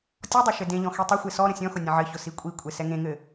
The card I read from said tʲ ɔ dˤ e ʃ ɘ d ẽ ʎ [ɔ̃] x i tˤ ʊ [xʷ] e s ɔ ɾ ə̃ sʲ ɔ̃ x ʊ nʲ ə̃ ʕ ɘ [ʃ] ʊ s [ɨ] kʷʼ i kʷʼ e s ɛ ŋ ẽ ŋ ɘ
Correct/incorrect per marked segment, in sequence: correct, correct, incorrect, incorrect

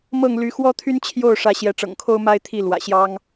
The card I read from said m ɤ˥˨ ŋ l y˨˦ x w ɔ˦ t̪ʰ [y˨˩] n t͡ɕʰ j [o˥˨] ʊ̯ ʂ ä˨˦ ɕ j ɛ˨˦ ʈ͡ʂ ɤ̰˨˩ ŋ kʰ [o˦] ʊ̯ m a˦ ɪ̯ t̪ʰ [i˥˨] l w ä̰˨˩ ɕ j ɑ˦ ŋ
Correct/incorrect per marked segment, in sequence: incorrect, correct, correct, correct

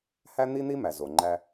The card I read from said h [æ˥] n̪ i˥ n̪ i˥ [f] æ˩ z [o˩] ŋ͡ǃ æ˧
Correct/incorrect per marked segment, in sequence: correct, incorrect, correct

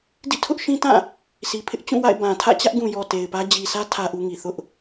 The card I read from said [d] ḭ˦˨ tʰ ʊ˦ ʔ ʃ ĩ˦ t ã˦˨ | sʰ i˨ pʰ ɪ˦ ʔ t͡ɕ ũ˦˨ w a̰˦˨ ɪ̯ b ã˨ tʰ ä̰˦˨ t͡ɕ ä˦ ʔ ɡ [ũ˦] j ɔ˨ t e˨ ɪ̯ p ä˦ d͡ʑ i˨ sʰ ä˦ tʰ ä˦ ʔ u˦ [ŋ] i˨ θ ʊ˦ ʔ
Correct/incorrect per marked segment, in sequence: correct, incorrect, correct

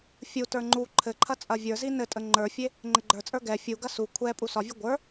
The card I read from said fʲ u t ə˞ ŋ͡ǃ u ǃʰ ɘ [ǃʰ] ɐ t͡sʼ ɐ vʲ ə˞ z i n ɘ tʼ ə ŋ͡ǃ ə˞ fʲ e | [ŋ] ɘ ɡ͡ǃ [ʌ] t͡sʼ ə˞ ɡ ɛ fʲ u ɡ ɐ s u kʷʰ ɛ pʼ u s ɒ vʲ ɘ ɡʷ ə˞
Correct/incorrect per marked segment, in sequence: correct, incorrect, incorrect

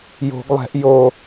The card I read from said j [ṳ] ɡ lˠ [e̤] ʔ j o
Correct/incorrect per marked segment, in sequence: incorrect, incorrect

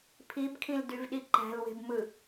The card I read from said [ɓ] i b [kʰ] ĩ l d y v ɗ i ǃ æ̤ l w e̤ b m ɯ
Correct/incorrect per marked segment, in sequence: incorrect, correct

